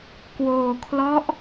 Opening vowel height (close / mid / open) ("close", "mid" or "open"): mid